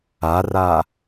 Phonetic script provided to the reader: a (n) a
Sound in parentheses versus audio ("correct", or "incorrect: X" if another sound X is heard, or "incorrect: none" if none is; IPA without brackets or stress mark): incorrect: r